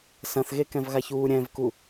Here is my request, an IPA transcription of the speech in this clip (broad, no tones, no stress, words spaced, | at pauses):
sɐ̃θɣekɛ̃vɣaç uːɾʲɛ̃vku